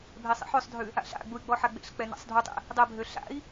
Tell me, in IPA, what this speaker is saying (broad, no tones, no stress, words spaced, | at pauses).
bʱesˤḛħøsˤdʱʉ | a̰ɬa̰ɡ͡buy̯ ɡ͡bɔħaɡ͡bḛɬk͡pɛ na̰sˤdʱutˤḛ | dˤɛbʱø ɬa̰i̯